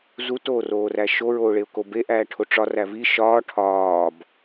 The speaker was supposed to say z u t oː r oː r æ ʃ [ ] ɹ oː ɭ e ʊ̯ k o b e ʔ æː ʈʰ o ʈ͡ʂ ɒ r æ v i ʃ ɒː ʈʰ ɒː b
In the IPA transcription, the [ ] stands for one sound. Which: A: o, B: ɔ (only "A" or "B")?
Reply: A